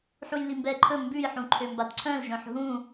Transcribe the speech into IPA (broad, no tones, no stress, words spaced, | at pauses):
ħujlimbɛǃʰɵ mbʉjħũǃʰømbad ǀʰœ̃lʒœ̃ħ ɦũ